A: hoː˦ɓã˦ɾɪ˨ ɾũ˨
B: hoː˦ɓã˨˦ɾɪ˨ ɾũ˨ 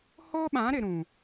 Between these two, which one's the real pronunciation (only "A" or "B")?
B